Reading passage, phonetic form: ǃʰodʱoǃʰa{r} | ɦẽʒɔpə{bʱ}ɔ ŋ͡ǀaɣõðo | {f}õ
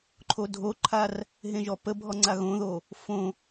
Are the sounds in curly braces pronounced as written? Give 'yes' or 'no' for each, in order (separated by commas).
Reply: yes, yes, yes